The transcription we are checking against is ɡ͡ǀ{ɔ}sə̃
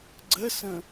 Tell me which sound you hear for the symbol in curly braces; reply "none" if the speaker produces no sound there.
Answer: ə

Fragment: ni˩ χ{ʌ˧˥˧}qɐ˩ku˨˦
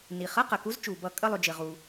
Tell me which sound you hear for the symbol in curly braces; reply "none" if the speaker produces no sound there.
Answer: ʌ˧˥˧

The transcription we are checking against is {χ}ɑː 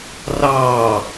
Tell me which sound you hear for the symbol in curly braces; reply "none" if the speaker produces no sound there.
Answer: r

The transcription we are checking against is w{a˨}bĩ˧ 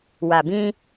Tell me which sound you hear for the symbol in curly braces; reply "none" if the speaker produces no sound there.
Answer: a˨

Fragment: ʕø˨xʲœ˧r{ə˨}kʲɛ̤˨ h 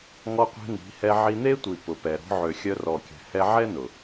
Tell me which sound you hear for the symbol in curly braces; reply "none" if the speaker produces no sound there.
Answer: ɔ˨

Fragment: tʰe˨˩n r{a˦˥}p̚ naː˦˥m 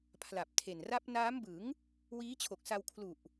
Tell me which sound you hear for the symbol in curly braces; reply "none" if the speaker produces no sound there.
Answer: a˦˥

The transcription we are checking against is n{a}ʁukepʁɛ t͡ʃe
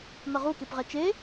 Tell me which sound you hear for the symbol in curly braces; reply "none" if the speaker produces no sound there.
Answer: ʌ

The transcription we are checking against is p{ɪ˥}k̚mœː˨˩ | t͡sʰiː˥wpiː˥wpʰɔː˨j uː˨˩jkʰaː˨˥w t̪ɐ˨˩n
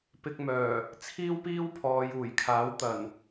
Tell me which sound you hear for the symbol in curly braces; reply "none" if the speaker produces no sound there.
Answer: ɪ˧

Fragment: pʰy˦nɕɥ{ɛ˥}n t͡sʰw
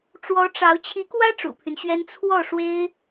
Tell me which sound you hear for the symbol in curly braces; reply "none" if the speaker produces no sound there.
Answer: ɛ˥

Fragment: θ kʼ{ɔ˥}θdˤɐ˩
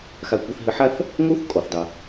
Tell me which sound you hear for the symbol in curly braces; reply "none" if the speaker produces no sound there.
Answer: ɔ˩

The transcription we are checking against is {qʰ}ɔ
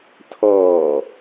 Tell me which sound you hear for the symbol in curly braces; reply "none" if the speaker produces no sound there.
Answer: tʰ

